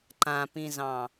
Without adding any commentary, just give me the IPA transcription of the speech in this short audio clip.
ǃ ã p ĩ z ɑ̃

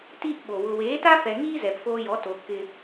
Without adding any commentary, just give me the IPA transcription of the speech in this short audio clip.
t iː˦ ʔ ɓ o˨ w ʊ˨ w eː˨˦ t a˦ f ɛ˨ ŋ iː˦ z ɛ˨ p f oː˧ j ɔ˨˦ t o˧ kː ɪ˦

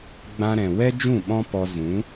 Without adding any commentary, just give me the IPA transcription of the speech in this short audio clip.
ɡ͡b ã˧ ɾ ɛ̃˨ w ɛ˦ d͡ʒ ũ˦˨ ɓ ɔ̃˦ p ɔ˧ z ũ˨˦

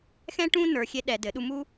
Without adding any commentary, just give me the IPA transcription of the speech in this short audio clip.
x ɛ̃˦ ʈ ũ˦ n ə˞˨ xʲ e˧ ɗ ɛ˨ d ɘ˨˦ ɗ u˧ m u˦

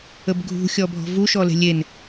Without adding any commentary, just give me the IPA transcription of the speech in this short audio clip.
ə b ɡʱ ṳ xʲ ɔ bʱ ɔ̤ v u ʃ ɔ l e̤ lʲ e n

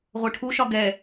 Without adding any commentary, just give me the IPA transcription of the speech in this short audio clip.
ʁʷ œ ʈʰ u ʃ ɒ ɡ ɛ

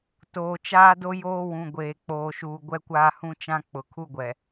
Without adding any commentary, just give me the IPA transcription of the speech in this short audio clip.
t oː˨ t͡ʃ aː˦ d o˦ j oː˦ w ũ˨ ɡʷ eː˨ k͡p oː˨ ʃ uː˨ ɡʷ ɛ˦ kʷ aː˦ h ũ˦ t͡ʃ ã˦ k͡p ʊ˨ kʰ u˦ ɡʷ ɛ˨

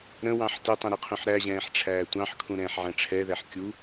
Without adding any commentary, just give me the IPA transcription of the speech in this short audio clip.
ɾ ə̃ w ɑ̃ ħ t ɪ tˤ ə̃ ɾ i qʰ ũ ħ ɾ æ ʑ ɛ̃ː ħ ʈ͡ʂʰ æː tʷ ɑ̃ ħ kʰ ũ ɾ ɛ̃ː ħ ʕ æ̃ ʈ͡ʂʰ ɛ ð æ ħ kʲ u

